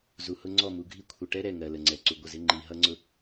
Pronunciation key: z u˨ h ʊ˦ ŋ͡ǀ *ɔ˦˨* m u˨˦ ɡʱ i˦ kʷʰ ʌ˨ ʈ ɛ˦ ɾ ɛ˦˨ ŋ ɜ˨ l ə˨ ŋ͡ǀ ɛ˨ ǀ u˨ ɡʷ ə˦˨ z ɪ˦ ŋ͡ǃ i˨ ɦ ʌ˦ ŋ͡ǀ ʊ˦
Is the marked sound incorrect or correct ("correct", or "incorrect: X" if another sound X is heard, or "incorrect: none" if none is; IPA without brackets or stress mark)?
correct